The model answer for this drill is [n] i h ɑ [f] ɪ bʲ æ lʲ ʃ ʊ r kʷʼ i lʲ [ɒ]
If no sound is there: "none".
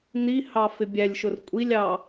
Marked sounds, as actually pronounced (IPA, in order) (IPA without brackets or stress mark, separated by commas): n, f, ɑ